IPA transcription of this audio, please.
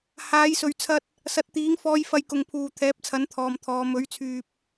h aː˨˥ j s ɵ˨ ɥ t͡sʰ ɐ˧ t̚ | s ɐ˨˥ t̚ t̪ iː˨˥ ŋ f ɔː˧ j f ɐ˧ j k ʊ˨ ŋ pʰ uː˨ t̪ʰ ɛː˨˥ p̚ t͡sʰ ɐ˨˥ n t̪ʰ ɔː˨ m t̪ʰ ɔː˨˧ m ɵ˨˥ ɥ t͡sʰ yː˨ p̚

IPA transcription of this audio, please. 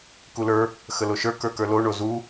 k u l ə˞ | x ə l o ʃ ə˞ k ə˞ k ə˞ l o ɳ o z u

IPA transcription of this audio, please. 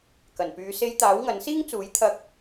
k ɐ˨˩ n p yː˨˧ s e˧ j t̪ aː˨˥ w ŋ ɐ˨˥ n s iː˥ ŋ t͡s uː˨˥ j t̪ʰ ɐ˧ k̚

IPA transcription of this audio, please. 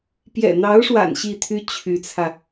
p j ɛ̰˨˩ n̪ ɑ˧˥ ʊ̯ ʂ w a̰˨˩ n ɕ i˥˩ t̪ʰ y˥ t͡ɕʰ y˧˥ t͡sʰ ä˧

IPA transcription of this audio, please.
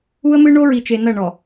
u˦ ə̯ m ɨ˦ ɳ o˦ ɹ i˨ t͡ʃ e˨ n ɐ˦˨ ɳ ɔ˨

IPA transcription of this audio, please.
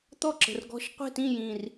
t̪ ɔ˥˨ ǁ ə̤˨˩ r ɡ ɔ̤˧˥˧ ʃ qʷ e̤˥˨ t ĩ˥˨ j ĩ˨˩ r

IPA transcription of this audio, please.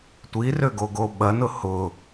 tʷ i r ø ɡ o ɡ o ɓ ɐ n ʊ h ʊ

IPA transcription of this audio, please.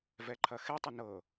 v ɛ ǃʰ ɐ x ɛ tˤ ə n ɤ

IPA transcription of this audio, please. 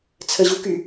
t͡sʰ ə ʑ u k y

